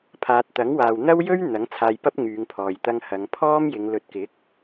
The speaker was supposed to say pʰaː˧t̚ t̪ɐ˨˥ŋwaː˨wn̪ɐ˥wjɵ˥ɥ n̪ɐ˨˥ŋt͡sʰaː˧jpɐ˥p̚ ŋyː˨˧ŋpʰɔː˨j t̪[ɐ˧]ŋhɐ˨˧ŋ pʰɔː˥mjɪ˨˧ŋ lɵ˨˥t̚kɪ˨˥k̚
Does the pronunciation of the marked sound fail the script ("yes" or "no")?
no